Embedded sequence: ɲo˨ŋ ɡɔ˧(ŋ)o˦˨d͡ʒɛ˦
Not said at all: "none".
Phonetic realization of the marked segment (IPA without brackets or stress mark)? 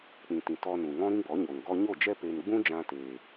ɲ